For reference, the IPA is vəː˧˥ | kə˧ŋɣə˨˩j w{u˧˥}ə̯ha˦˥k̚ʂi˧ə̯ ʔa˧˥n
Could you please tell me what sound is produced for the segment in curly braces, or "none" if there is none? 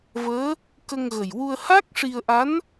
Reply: u˧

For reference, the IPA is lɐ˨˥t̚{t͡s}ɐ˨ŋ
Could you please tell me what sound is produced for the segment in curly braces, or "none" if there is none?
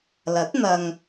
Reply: n̪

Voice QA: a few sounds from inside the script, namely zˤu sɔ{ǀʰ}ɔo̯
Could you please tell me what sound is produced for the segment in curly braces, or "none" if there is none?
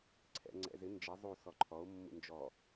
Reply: ǃʰ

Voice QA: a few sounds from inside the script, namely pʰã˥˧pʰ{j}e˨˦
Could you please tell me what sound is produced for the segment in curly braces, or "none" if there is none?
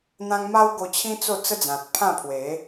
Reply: w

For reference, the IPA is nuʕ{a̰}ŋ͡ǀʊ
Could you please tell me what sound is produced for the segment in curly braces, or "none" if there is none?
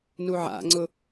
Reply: a̰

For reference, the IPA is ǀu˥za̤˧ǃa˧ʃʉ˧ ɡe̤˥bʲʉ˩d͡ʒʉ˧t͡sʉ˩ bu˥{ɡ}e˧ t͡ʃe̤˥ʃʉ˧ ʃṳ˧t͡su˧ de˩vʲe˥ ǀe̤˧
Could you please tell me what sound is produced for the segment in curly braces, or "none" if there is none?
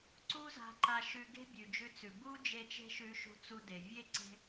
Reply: d͡ʒ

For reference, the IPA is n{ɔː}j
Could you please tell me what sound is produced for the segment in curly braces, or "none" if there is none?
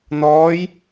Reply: ɔː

